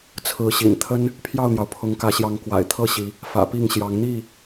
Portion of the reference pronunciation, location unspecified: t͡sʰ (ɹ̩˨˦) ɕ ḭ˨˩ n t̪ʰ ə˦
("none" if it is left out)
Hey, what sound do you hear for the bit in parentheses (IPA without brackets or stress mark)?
ɹ̩˨˦